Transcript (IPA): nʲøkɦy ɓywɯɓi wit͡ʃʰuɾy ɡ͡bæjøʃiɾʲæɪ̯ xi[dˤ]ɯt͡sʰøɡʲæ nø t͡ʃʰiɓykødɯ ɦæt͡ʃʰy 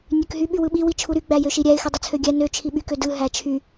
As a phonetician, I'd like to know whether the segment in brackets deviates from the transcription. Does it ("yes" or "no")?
no